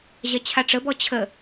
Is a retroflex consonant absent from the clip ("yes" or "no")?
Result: no